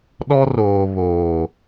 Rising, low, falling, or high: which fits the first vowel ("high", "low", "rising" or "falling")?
high